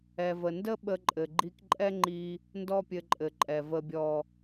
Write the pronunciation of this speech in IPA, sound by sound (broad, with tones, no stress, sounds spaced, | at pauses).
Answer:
ɛ˨ v ə˨ n d ə˦ ɓ ə˧ ǃʼ ɘ˨ ɡ͡ǃ i˧ k ǃʼ ɛ˦ ŋ͡ǃ i˧ | n d ɔ˦ pʲ ɘ˧ ǃʼ ɘ˨ ǃʼ ɛ˨ v ə˨ bʲ ɔ˨